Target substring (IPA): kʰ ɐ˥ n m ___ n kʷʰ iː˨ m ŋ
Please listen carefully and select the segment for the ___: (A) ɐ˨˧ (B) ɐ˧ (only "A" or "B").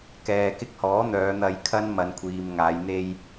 A